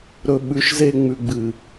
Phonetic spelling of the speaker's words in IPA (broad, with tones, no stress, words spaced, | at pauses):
ɾɵ˨ ɓʉ˨ʃze˦ ŋ͡mʉ˨ɡ͡bɨ˨